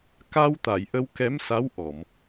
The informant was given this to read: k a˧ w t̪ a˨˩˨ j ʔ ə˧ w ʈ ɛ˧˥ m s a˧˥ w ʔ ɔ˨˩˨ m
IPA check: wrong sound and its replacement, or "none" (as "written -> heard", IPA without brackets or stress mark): ʈ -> k